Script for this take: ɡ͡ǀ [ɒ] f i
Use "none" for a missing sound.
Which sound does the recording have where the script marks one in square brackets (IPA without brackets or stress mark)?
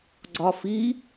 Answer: ɒ